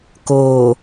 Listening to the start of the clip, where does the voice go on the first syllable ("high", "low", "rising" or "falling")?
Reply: low